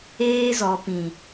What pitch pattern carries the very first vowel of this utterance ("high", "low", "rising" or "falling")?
high